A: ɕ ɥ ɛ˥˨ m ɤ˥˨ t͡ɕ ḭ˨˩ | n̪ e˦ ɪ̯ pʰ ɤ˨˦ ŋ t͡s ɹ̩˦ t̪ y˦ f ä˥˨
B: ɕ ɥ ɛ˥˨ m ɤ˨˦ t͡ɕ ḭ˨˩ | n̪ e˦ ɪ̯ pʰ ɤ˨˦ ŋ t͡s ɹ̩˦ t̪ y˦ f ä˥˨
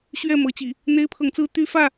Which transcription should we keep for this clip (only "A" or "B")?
B